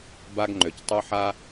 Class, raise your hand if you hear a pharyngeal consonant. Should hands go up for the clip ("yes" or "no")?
yes